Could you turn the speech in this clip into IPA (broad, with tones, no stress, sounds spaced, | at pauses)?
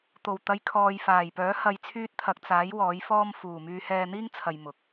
t̪ o˨˩ w t̪ ɐ˨˧ j kʰ ɔː˨ j f aː˨˩ j p œː˨˥ h ɐ˧ j t͡sʰ yː˥ t̚ t̪ʰ ɐ˧ k̚ t͡s aː˨˥ j w ɔː˨˥ j f ɔː˥ m f uː˨˩ m yː˧ h ɛː˧ n̪ iː˥ ŋ t͡sʰ ɐ˨ j m ʊ˨˥ k̚